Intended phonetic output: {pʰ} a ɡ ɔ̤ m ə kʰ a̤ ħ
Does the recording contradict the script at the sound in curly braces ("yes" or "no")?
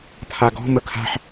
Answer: no